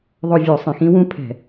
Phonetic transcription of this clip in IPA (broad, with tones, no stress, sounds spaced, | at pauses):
ðˤ o˦˨ vʲ o˧˩˧ sˤ ĩ˩ x ĩ˦˥ w ũ˦˥ pʰ ɛ̤˧˩˧